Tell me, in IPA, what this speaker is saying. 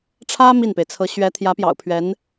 ʈ͡ʂʰ ä˥ m i˥˩ n p e˩ ɪ̯ t͡sʰ ɤ˧˥ ɕ ɥ ɛ˧˥ t̪ʰ j ä˧˥ p j ɑ̰˨˩ ʊ̯ pʰ ɥ ɛ˧˥ n

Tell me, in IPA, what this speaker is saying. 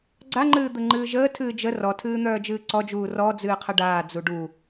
ɡ͡ǀ a ŋ͡ǃ ɨː d̪ ə ŋ͡ǃ ɨː ʒ əː tʰ ɨː d͡ʒ ə r ɔ tʰ ɨː n̪ œː d͡ʒ ɨː ǀ ɔ d͡ʒ uː r ɔ d͡z ɨː qʰ ə ɖ aː d͡z u ɖ u

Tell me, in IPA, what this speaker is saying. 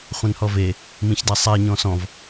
χʷ ɛ̃ n h ɔ v e | m ĩ ç d a sˤ ɛ ɲ ɔ̃ s ɔ̃ v

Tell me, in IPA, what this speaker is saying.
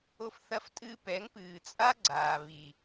o˧ f θ ɐ˧ f tʼ ɨː˧ p ɛ˨˦ ŋ p ɨː˨ t͡sʼ a˦ ɡ͡ǀ aː˨ β i˨

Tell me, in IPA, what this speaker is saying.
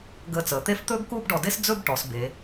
ɡ əː˧˩ t͡s əː˩˧ t̪ e˥˧ f t̪ ɵː˥ ɡ k uː˥˧ b ɖ ɔ˧ d e˥ s d͡z ɵ˥˧ b ʈ ɔ˩˧ s b eː˩˧

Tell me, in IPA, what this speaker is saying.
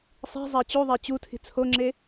sˤ i̤ zˤ ɛ t͡ɕ u ðˤ e t͡ɕ u tʰ i̤ t͡sʰ o ŋ͡ǁ e

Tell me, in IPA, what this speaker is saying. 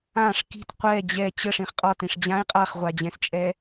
ã ʂ k i̤ t qʷ ɛ d͡ʑ ɛ t͡ɕ ə ʂ ĩ χ qʼ ɒ t ĩ ʂ d͡ʑ ã i̯ qʼ a χ ʁʷ a d͡ʑ ɛ̃ s t͡ʃʼ ɛ

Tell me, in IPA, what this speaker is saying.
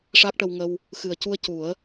ʂ a˦˥ k̚ ʈ ə˧ w ŋ ə˧ w | x ɨ˨˩ ə̯ c u˧ ə̯ c u˨˩˦ ə̯

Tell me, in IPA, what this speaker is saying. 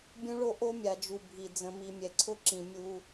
bʲ ũ˦ ɭ o˦ ʔ o˦ mʲ a˨ d͡ʒ u˨ bʱ i˨ d͡z ə̃˨ m i˨ mʲ ɛ˨ ǀʰ ʊ˦ ǁ ĩ˨ mʲ u˦

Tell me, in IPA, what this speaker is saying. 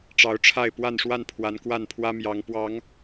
ʈ͡ʂ ɑ˨˦ ʊ̯ ʈ͡ʂʰ a˥˨ ɪ̯ p w a˥˨ n ʂ w a˥˨ n pʰ w a˨˦ n k w a˥˨ n pʰ w ä˦ m j ɑ˨˦ ŋ p w ɑ˨˦ ŋ

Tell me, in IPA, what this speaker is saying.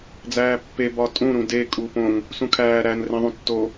d͡z æː pː e b ɒ tʼ ũ ɾ ũ d e kʼ uː p õ ŋ | s ũ kʰ æː ɾ æ n r ẽ ðˤ ũ tː o

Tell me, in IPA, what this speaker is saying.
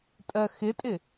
tʼ ɜ x ɪ tʼ ɪ

